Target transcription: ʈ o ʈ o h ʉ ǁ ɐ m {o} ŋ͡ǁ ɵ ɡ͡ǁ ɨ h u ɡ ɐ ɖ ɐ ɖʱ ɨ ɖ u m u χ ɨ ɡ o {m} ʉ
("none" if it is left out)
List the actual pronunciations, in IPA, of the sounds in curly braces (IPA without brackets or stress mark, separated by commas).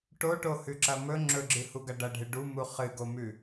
ɵ, m